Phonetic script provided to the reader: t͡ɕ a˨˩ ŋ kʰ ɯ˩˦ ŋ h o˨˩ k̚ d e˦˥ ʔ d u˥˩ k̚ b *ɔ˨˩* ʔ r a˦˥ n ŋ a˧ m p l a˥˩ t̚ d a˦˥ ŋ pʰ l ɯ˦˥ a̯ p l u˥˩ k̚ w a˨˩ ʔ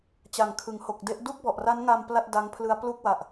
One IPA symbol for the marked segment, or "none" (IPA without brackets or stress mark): ɔ˨˩